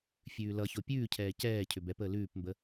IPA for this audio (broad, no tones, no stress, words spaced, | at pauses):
fʲʉːlʌço pʲʉːcʰɛː cɛː cʰʏbɛpəː lʉːpmbə